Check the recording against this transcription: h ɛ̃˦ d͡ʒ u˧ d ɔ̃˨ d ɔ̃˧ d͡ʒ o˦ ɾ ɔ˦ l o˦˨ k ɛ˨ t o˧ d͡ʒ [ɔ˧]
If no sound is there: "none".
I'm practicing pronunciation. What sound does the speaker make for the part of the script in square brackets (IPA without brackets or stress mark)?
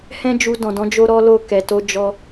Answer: ɔ˧